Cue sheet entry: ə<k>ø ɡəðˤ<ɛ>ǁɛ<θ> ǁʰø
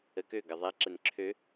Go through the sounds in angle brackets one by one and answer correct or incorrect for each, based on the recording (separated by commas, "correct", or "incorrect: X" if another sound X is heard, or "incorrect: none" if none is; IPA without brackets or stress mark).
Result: correct, correct, incorrect: n